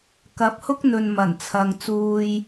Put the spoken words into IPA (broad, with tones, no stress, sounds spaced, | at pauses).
k ɐ˨˥ p̚ h ʊ˥ k̚ n̪ ɵ˨ n m ɐ˨˩ n t͡sʰ ɐ˨ ŋ t͡s uː˨ j